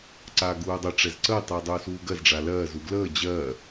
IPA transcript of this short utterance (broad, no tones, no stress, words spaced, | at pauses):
ǀaːɡuːdˤə ʈ͡ʂɛzǀəː tˤuːdˤuːsuːɡɜz ɖ͡ʐalɜː zuɡləː d͡ʑɜ